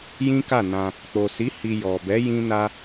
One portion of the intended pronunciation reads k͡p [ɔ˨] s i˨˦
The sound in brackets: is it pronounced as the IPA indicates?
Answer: no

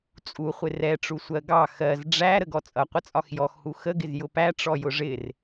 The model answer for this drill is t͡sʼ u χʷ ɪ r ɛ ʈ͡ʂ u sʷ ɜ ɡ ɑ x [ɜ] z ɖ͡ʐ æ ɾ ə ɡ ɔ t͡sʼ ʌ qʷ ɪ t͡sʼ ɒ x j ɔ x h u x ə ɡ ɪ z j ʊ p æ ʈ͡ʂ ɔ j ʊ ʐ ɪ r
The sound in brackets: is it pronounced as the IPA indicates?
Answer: yes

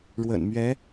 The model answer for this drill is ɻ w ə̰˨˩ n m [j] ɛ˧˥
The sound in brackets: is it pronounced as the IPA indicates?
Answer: no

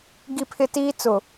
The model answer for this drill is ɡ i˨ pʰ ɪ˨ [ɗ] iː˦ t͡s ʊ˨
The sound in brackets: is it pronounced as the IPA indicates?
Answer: no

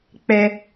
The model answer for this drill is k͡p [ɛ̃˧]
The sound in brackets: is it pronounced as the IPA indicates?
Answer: no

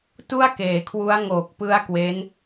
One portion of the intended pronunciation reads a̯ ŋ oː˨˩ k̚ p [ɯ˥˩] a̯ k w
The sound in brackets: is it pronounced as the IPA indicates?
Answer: no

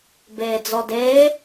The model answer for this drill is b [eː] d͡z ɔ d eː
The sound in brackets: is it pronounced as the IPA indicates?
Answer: yes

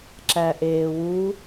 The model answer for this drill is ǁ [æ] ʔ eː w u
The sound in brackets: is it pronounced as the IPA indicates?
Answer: yes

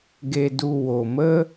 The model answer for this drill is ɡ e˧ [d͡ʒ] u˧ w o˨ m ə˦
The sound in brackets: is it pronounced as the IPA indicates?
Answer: no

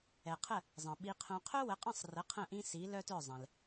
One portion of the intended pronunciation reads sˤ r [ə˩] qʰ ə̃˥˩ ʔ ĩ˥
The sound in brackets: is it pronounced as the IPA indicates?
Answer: no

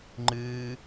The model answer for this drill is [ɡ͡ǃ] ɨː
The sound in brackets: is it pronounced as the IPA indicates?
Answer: no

